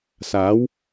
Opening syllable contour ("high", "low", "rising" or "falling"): rising